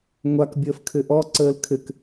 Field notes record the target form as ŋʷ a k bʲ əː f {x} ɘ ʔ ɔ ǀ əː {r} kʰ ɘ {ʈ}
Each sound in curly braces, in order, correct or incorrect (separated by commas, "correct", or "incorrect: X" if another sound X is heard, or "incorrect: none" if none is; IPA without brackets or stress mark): incorrect: kʰ, incorrect: l, incorrect: k